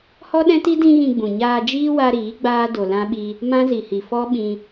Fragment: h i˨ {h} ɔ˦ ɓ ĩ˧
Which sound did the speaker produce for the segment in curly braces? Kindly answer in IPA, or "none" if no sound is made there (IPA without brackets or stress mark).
f